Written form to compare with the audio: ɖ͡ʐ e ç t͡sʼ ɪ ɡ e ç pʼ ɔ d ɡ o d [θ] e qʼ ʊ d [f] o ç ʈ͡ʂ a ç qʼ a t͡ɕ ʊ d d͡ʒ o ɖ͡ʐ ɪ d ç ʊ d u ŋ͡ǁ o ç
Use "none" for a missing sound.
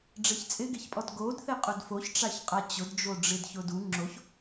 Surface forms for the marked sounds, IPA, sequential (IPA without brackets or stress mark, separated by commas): θ, f